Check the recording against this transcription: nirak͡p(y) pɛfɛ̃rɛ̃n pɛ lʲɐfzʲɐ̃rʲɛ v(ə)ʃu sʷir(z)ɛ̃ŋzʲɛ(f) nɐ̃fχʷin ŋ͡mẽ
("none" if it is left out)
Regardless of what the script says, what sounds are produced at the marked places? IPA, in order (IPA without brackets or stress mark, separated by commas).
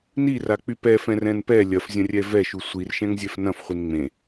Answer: y, ɛ, ʃ, f